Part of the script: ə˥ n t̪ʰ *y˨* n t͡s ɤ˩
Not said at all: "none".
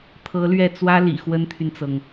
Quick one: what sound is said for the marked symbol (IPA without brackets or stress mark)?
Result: y˨